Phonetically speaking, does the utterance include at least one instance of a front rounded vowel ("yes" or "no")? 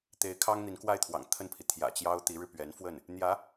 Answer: no